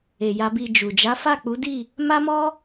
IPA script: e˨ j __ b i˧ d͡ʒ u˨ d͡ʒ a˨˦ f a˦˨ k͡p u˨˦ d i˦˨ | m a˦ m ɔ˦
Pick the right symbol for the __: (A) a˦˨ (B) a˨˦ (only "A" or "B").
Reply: B